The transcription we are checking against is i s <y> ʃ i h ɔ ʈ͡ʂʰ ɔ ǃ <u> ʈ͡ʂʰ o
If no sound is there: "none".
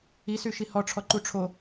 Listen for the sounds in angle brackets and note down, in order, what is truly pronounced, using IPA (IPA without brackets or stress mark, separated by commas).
y, u